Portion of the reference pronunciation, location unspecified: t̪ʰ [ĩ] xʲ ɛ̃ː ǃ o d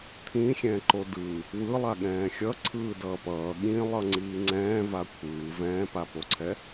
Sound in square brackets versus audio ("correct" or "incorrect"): correct